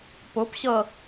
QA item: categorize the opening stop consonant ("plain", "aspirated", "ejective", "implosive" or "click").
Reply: plain